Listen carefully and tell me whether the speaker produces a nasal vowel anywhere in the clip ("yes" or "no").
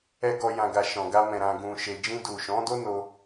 yes